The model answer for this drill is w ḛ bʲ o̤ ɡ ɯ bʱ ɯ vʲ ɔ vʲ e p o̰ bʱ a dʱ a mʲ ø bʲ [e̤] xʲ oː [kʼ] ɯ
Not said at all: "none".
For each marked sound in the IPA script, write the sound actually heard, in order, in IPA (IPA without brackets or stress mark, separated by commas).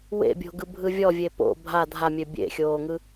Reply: ḛ, ŋ